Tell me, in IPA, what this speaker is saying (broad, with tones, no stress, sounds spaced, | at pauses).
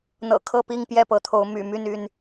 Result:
n̪ ɤ̰˨˩ kʰ ɤ˥˨ p i˥˨ ŋ p j ɛ˥˨ p ɤ˨˦ t̪ʰ o˨˦ ʊ̯ m y̰˨˩ m y˥˨ n y˥˨ n